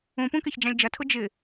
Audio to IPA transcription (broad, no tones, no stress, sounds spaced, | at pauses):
ũ p ũ k e ç d͡ʒ ã lʲ d͡ʒ ɐ tʰ ʊ d͡ʒ ɪ